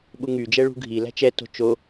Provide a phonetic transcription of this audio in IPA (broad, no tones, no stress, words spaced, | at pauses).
ɓuŋy d͡ʒɛɭṳɡʱi læ̤t͡ʃɛ to̤t͡ʃo